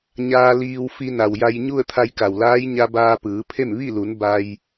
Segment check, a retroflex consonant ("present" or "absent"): absent